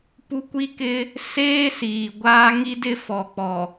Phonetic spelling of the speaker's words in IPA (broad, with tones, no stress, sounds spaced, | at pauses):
p u˦ kʷ i˦ k ɪ˦ | s eː˦ s iː˨ ɡʷ aː˦ ŋ i˦ d ɪ˦ f ɔ˨ k͡p ɔ˨